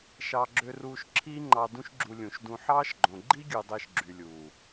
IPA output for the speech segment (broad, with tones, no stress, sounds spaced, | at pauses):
ʃ ɑ˧ ɡ͡ǁ ø˧ r uː˧ ʃ ǁʰ iː˦ ŋ͡ǃ ɑ˧ d ũ˦ ʃ ɡ͡ǁ u˧ lʲ ũ˨ ʃ d ũ˧ ħ ɑː˦ ʃ ɡ͡ǃ õ˨ ɡ͡ǃ i˦ ɡʲ ɯ˨ dˤ e˧ ʃ ɡ͡ǁ y˨ lʲ uː˨